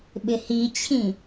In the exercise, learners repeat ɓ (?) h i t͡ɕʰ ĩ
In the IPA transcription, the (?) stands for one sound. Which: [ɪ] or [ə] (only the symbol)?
ɪ